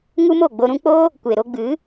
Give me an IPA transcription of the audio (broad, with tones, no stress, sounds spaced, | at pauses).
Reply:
ŋ u˦ m o˦˨ ɡ͡b o˧ ɾ ũ˧ k͡p oː˦ | kʷ e˨ ɾ o˧ ɡ͡b ɨ˨˦